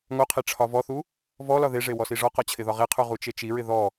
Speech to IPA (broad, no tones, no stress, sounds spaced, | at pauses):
ŋ o qʰ e ʈ͡ʂʰ ɒ v ɔ θ u | v ɔ l ɒ ð e ʐ e w ɔ s i ʐ ɔ q ɒ t͡ɕʰ ɪ ð ɒ ʁ e qʰ u ʁ u t͡ʃ e t͡ʃ i ɹ ɪ ð ɔ